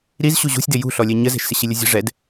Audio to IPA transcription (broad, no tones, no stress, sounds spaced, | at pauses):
ɾ i z ɕ u ʑ ṳ sʲ d ɪ j ṳ ɬ ɔ lʲ ɛ ɲ ə z ɛ̤ ʃ s ɪ ɕ i lʲ ə zʲ ɛ̤ ʐ ɛ d